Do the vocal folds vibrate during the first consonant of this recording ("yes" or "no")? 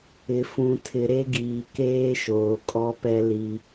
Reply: no